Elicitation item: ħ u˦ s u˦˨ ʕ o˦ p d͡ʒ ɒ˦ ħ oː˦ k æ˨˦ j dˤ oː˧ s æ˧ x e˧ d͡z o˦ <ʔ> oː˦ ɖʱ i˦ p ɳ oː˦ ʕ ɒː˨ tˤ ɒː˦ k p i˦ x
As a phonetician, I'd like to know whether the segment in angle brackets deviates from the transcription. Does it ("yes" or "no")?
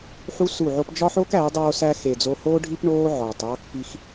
yes